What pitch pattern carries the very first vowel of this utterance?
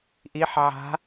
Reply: rising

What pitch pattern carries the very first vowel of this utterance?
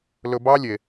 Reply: low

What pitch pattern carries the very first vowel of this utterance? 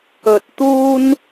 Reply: low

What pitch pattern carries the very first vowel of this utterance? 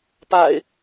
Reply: low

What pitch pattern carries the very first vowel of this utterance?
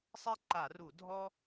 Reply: high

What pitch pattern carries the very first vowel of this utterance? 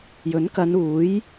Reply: rising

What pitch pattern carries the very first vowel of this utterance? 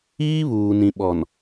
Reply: high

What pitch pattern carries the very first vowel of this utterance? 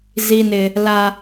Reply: high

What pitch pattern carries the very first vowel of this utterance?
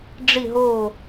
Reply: falling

